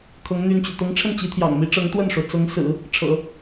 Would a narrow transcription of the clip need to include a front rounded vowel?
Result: yes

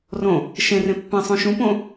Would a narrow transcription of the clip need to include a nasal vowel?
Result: yes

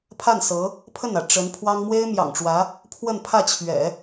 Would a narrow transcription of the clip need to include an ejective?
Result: no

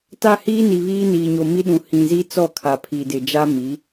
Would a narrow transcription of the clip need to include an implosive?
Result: yes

